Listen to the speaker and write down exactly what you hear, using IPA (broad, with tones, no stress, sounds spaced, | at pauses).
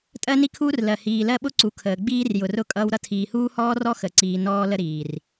tʼ ɜ˦ n i˦ kʰ uː˦ r l ɜ˨ h iː˨ l ɜ˦ ɓ ʊ˦ ǀ u˨ kʰ əː˨ ɡ͡b iː˦ r j ʊ˨ r ʊː˦ kʼ ʌː˦ w ɾ ʌ˦ tʰ iː˨ h uː˦ h ɔː˦ r ɔ˦ x ə˨ ǀ iː˨ n ɔː˦ l ə˦ ɾ iː˨ r